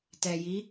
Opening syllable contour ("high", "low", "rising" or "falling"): low